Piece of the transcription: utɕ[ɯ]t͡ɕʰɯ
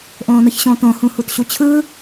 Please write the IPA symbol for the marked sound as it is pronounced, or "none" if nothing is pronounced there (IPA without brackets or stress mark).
u